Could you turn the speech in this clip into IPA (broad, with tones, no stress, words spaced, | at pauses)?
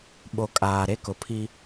ɓo˨ kʼaː˨ ɾe˦kʊ˨pʰi˦